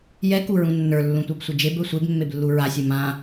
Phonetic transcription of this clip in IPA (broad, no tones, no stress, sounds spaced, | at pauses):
j ɛ k u ɹ ũ nː ə˞ lː ũ tʷ a b sʷ e d͡ʒ e b ə˞ sʷ e b mː e b lː u ɹ a sʲ ɘ m ã